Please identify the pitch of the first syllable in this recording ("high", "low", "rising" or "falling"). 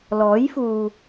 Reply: rising